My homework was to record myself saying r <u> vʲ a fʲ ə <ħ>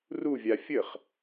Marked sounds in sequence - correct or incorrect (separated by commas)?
correct, incorrect